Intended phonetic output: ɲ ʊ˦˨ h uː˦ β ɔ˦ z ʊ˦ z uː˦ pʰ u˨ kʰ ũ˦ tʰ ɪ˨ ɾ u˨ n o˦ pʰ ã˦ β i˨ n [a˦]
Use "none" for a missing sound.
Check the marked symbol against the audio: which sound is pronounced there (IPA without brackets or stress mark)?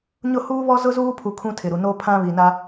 a˦